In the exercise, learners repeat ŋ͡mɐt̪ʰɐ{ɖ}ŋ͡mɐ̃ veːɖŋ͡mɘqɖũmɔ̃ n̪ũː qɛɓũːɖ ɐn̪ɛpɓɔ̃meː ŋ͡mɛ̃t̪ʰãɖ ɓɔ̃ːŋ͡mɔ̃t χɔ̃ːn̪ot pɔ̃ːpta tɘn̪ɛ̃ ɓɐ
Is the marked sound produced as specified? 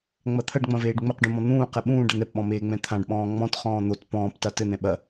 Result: yes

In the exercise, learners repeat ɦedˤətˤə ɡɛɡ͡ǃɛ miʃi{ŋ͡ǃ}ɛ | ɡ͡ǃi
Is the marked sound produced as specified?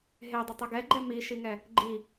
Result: no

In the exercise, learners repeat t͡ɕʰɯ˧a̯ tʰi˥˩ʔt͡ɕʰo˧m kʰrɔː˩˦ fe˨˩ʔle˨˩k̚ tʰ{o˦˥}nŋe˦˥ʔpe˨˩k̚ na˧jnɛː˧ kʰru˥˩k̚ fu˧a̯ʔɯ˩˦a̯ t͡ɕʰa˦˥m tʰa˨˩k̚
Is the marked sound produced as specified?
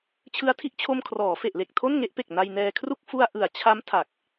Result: no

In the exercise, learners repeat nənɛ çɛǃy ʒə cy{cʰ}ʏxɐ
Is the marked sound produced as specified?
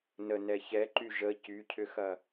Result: yes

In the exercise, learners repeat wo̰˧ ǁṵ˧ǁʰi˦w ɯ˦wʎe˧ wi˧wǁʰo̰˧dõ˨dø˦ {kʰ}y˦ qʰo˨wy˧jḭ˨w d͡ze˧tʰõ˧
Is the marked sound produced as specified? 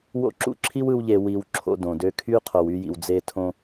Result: yes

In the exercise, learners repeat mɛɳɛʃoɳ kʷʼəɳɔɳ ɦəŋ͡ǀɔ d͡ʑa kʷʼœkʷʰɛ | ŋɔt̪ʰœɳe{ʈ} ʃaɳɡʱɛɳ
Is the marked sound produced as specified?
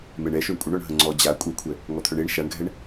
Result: no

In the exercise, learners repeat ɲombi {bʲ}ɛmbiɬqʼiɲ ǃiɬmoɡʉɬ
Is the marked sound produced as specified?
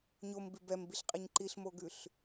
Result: no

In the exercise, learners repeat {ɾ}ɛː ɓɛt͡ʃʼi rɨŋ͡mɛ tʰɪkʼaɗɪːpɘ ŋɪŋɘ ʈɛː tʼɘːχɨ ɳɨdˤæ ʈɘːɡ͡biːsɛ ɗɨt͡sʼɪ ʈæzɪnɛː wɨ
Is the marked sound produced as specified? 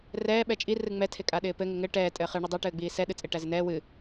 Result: no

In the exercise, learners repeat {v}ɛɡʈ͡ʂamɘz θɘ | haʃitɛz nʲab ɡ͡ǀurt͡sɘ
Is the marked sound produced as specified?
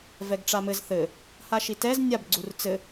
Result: yes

